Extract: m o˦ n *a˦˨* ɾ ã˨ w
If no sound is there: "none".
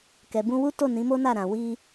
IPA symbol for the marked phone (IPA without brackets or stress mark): a˦˨